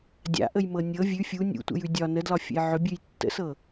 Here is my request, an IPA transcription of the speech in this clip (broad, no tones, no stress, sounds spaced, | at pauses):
dʲ a̰ ʔ ə j m ɤ nʲ ɤ vʲ ʉ fʲ u nʲ ṵ tʷ ə̰ j ʉ dʲ ɒ n ə d l ɒ fʲ ə̰ j ʕ ʏ bʲ ʉ j tː ə̰ s ɤ